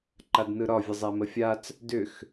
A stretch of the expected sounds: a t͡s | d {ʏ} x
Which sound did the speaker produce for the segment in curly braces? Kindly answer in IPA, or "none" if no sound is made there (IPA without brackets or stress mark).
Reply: ʏ